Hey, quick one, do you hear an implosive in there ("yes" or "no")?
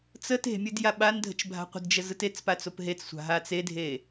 yes